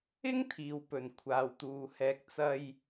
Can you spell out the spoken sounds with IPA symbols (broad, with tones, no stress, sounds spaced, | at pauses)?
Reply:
ɪ˥ ŋ t̪ʰ iː˨ w p ɵ˨˩ n kʷʰ aː˨ w t̪ uː˨ h ɛː˧ k̚ t͡s ɐ˥ j